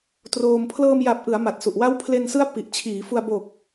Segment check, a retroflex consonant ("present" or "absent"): absent